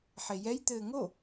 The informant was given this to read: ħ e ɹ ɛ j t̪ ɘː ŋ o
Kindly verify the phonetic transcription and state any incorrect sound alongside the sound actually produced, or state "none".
ɹ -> j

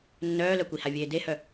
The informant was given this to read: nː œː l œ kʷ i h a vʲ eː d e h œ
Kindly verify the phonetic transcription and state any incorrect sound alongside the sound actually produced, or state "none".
none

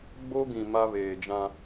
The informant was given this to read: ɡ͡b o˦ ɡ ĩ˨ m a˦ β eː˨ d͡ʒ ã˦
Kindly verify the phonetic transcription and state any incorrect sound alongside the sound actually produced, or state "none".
none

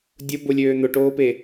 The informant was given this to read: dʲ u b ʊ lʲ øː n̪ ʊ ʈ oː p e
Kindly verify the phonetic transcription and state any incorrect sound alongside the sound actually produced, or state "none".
u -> ʊ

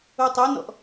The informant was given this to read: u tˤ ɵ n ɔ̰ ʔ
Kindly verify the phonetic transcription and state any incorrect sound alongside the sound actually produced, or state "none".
none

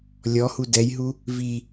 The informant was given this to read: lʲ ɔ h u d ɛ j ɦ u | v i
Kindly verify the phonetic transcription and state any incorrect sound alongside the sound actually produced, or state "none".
none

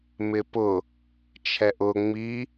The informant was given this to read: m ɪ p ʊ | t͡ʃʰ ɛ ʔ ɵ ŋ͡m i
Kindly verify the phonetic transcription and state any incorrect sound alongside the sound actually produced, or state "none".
ɵ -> ʊ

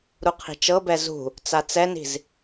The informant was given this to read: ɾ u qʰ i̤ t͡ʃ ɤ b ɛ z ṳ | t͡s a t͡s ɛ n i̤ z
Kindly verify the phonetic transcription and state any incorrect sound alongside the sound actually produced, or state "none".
none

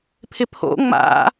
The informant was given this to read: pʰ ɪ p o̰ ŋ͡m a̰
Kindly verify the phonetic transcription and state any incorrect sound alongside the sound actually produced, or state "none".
p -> pʰ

